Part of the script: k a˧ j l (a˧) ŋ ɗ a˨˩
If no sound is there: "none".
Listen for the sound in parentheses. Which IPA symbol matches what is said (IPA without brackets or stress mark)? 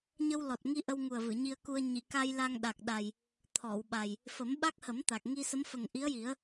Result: a˧